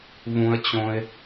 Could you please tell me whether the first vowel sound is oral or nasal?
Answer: nasal